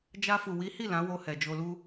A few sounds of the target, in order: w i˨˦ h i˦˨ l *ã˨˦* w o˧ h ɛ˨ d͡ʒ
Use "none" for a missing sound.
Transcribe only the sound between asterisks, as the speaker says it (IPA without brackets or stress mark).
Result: ã˨˦